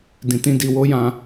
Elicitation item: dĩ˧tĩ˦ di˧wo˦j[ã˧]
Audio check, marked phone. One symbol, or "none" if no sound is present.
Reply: ã˧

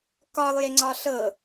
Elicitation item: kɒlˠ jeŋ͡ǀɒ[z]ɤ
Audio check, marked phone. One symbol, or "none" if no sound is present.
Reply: ɬ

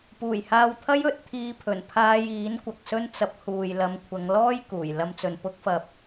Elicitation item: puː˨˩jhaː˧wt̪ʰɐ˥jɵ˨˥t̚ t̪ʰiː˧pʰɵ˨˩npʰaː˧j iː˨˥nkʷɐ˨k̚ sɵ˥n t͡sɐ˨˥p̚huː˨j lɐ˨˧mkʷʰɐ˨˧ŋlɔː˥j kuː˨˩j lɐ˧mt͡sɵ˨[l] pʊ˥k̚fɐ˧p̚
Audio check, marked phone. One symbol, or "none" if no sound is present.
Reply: n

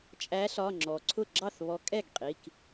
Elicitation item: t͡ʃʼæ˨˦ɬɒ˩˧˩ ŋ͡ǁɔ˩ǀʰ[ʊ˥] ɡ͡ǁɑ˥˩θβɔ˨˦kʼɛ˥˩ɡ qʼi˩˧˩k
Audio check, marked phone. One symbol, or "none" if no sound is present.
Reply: ʊ˥˩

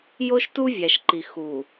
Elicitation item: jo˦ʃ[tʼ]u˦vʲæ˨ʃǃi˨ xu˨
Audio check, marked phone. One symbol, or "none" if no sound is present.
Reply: t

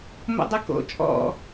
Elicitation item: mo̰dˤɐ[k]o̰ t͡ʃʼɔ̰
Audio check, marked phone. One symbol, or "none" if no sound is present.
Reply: k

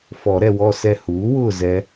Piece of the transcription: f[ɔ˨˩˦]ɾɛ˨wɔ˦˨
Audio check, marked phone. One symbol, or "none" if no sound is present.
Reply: ɔ˨˩˦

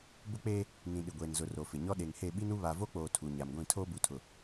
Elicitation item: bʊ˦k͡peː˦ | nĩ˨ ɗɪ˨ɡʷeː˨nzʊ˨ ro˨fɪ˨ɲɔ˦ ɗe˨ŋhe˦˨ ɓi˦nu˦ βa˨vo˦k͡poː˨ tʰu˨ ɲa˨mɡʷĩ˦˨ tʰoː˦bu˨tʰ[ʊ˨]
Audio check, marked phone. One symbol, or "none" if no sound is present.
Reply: ʊ˨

